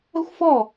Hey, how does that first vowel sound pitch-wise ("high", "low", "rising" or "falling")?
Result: high